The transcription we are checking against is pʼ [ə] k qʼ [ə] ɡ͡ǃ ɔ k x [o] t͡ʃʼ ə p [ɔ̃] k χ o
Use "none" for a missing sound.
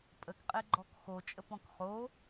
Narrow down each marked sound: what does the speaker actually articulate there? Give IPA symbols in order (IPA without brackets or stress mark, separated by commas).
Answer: ə, ɛ, o, ɔ̃